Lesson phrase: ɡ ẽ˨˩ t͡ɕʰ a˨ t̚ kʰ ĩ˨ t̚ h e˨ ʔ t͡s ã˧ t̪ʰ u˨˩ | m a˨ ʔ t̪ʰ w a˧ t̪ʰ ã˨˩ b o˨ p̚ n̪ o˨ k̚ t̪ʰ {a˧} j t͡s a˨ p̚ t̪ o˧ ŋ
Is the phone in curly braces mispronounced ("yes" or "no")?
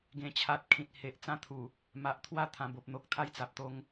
no